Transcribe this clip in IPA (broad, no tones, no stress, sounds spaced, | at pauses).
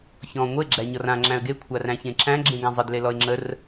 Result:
ç ɔ̃ ŋʷ e ɡ͡ǁ æ ɲ ɔ r ã ŋ͡ǁ æ̃ ə̯ ɡ e kʷʰ a r æ̃ ç ẽ ǁ æ̃ ɡ͡ǁ ẽ ɡ ã zˤ ə d l e l ɔ ɪ̯ ŋ͡ǁ ə r